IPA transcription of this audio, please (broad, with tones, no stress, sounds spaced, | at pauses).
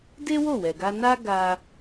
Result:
d e˦ w o˦˨ w ɛ˨ ɡ a˧ n a˦ ɡ a˧